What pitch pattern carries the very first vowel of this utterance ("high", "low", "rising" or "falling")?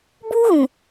high